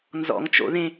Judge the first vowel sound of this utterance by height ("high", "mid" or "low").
mid